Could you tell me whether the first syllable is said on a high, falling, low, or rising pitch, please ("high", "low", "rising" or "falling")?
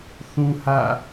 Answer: high